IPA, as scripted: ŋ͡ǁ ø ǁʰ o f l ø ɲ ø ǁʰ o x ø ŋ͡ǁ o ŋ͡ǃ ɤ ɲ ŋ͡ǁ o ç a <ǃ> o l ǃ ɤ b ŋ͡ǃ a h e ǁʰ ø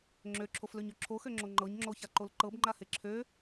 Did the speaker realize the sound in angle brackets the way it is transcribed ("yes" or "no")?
yes